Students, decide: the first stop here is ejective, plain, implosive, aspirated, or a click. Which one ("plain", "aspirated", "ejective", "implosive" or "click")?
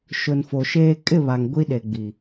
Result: ejective